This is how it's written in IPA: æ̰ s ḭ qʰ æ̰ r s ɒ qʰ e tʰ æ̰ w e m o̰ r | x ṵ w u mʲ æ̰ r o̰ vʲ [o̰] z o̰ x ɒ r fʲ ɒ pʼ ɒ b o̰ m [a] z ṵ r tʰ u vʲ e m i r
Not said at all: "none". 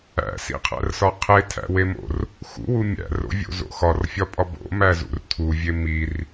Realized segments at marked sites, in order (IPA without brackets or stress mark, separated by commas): o̰, æ